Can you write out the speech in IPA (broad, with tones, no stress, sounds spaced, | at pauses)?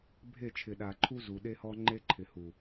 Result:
bʱ e˦˨ t͡ʃʰ ɪ˨ ɗ a˨ ǃʰ u˦ z u˨ ɗ e˦ h ɔ˦ ŋ͡ǃ e˦ ǃʰ ɪ˨ h u˨